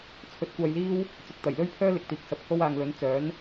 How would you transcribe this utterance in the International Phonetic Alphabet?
t͡sʰ ɵ˨˥ t̚ kʷ aː˧ j l iː˥ w | t͡s ʊ˨ k̚ t̪ ɐ˨˩ j l ɵ˥ ɥ pʰ œː˥ l ɪ˨˥ k̚ t̪ iː˨ k̚ s ɐ˧ p̚ h o˥ w aː˨ ŋ l ɵ˨˥ n t͡s œː˨˥ n

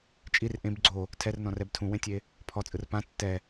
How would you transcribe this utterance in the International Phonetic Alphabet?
t͡ʃʼ i r ʔ ẽ b ɡ͡ǀ o | tʰ ɛ r n ɔ̃ r ɛ b tʰ ũ w ẽ tʲ e | pʰ ɔ t͡sʼ ɯ r p ã tː ɛ

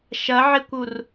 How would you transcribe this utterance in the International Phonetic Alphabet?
ʃ ɐ ʕ e kʷ u r

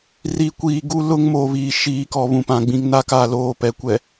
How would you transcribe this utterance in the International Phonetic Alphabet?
r i˨ kʷ iː˨ ɡ u˦ l ʊ˦ ŋ m o˨ β iː˨ ʃ iː˨ k ɔ˨ β ũ˨ p ã˨ ɡ͡b ĩ˨ ŋ n a˦ k aː˨ l oː˨ p ɛ˨ kʷ ɛ˨

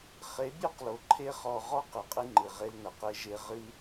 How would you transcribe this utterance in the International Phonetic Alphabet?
χ e˨˦ bʲ o˦ q l o˨ ǃʰ e˦ χ ɔ˧ ʁ ɔ˦ q ɨ˨ qʼ ɨ˧ ŋ͡ǃ ɨ˨ ʁ e˧ l n ɐ˨ q e˧ ʒ e˧ ʁ ɨ˦

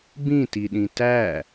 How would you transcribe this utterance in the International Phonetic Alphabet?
b ĩ t i ɗ ĩ t æ

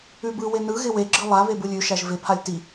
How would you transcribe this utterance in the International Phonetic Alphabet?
ʉ b ɯ w e n ɯ ɣ ɪ w e ɡ͡ǁ ɯ lˠ a β e b ɯ lʲ ʉ ʃ æ ʒ v ɪ pʰ a lʲ t i

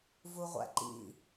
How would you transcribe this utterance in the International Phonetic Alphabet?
v u ʁʷ æ̰ ǃ ḭ

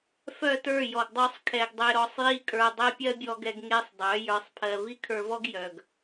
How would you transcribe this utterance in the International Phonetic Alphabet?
f œ˦˨ t ə˞˦˨ j ɔ˨ ɡ dˤ œ˧ sˤ kʰ ɛ˨ ɡ dˤ e˧ ɾ ɔ˧ sˤ j i˦ kʼ ə˞˧ dˤ ɛ˦ pʲ ɜ˦ bʲ ɔ˧ ɡ ɛ˧ ɡ ŋ e˦ sˤ dˤ œ˨˦ j ə˞˧ sˤ pʰ ɜ˧ v i˦ kʰ ə˞˧ v ɔ˦ ɡ j œ˨ ɡ

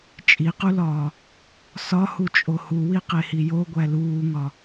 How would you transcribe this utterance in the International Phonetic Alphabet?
t͡ʃʼ i q u l ɒː | s ɒ h u t͡ʃʼ o h u w i q e h i j o ɡʷ æ l uː ŋ ɒ

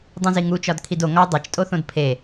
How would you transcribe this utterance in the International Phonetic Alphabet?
dˤ ũ z i ŋ u t͡ʃ ɒ d kʰ i d o ŋ ɒ dˤ e t͡ʃ tʼ o θ õ d pʰ e

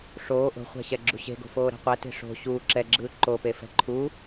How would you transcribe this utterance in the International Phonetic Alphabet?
ʂ oː ʔ o̤ χʷ ɛ̤ ɕ ɛ ɡ͡ǁ ṳ ɕ e̤ ɡ o̤ f oː ɾ ɛ̤ qʷ ɛ t e̤ ʂ o̤ ɕ uː ǁ ɛ ɡ͡ǁ ɯː ǃ o p e f ɛ̤ ǃʰ u

